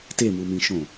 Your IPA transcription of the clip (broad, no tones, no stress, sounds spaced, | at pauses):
t e m u m ĩ ʃ õ